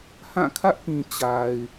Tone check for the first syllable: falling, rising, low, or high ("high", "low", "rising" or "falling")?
falling